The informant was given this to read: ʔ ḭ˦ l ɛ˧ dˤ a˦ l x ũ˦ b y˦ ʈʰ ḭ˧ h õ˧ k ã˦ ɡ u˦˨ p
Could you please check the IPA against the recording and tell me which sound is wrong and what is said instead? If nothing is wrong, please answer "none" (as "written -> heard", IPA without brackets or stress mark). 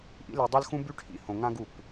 k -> ŋ